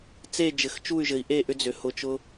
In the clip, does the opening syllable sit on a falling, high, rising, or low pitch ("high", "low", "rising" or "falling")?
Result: falling